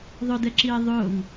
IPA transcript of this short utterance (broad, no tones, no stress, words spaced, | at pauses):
ðˤʊdɛǁiː ðˤʊːŋ